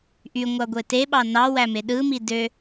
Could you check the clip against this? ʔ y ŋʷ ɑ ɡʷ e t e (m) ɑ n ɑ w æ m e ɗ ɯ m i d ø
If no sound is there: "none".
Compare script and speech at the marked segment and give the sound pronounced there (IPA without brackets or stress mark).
ɓ